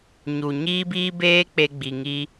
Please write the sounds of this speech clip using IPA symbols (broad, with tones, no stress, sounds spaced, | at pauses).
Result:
ɲ u˨ ɲ iː˦ b iː˦ b eː˦ k͡p e˧ ɡ͡b i˨ ŋ i˦